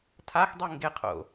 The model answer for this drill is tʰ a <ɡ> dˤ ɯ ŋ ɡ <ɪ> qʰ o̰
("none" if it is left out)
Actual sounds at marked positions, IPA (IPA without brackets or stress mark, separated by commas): x, ɪ